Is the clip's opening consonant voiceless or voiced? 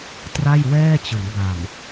voiceless